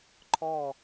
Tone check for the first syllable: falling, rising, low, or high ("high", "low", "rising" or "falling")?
falling